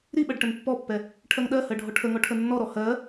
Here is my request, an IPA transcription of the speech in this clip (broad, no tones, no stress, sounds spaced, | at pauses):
ɾ i ɓ ɜ ɖ ʈ ə n pː ɔ pː ɛ | ʈʰ ɜ ŋ ɗ ɜ h ɜ ɖʱ ɔ ʈʰ ə ŋ ɔ ʈʰ ə nː ɔ ɾ ɔ h ɜ